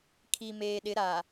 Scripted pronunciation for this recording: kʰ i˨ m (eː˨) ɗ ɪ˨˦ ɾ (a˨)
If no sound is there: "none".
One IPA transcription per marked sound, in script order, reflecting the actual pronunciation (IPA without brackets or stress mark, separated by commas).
eː˨, a˨